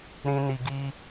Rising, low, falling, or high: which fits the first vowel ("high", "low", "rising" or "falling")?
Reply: high